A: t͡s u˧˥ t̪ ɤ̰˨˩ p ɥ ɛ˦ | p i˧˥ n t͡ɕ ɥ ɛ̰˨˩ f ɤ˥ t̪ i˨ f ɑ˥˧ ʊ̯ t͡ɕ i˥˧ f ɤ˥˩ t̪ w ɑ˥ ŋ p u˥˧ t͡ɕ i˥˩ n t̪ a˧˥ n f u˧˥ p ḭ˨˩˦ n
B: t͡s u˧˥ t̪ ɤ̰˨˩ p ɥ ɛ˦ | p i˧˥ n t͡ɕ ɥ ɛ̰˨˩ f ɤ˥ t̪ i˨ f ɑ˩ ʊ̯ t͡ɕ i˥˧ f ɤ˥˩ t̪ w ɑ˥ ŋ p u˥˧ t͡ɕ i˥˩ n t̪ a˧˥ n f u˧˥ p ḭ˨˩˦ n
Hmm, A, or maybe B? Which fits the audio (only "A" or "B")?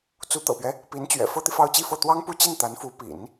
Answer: A